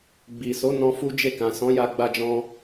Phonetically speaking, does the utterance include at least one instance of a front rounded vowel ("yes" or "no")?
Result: no